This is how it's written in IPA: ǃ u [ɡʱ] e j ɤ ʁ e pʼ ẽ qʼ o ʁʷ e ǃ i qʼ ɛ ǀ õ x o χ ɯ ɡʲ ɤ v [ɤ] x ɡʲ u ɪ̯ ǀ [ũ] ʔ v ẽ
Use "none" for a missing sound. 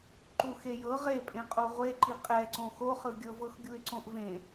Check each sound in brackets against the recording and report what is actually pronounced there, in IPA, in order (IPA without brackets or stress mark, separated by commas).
x, ɤ, õ